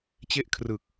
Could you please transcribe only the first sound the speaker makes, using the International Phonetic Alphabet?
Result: t͡ɕ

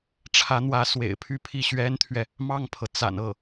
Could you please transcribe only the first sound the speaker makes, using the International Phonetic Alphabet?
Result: ʈ͡ʂʰ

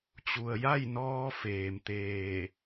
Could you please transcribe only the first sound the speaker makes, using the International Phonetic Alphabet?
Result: t͡ɕ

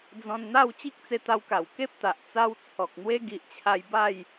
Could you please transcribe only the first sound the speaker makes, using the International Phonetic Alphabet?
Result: d͡z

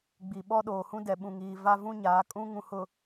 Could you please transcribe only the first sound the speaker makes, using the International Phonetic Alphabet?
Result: ɡ͡b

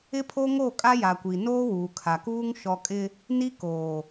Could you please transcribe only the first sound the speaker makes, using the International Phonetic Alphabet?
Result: ɪ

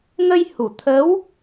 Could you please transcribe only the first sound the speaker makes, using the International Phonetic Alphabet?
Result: ŋ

